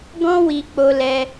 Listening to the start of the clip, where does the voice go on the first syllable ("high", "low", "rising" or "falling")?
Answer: high